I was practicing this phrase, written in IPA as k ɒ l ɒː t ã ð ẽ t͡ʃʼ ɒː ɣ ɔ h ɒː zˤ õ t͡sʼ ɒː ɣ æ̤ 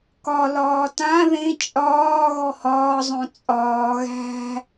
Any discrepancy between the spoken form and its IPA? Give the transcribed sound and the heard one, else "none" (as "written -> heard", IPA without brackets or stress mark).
none